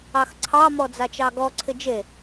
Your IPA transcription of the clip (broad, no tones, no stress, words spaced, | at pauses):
ɑxǀʰɑ mɔd͡zat͡ʃɑɡɔ ǀʰɪd͡ʒe